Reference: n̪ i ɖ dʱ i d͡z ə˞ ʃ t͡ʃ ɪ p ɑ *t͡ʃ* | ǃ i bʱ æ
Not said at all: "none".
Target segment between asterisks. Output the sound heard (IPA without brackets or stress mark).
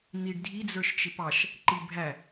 ʃ